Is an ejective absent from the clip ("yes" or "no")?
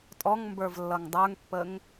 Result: no